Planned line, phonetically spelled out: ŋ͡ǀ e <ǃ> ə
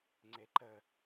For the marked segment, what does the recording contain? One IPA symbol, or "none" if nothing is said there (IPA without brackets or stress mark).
ǃ